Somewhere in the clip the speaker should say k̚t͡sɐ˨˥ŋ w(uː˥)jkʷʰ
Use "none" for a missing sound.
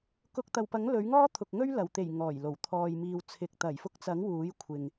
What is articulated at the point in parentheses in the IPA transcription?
uː˨˥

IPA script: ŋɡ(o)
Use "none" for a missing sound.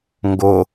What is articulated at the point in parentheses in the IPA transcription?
o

